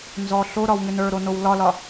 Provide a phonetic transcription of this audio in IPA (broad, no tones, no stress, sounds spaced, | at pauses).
n z ɔ ɬ o ɾ ɒ w ŋ ʏ n ə˞ ɾ o n o w l ɒ l ɒ